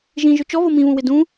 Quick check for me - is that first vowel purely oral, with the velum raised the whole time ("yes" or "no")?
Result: no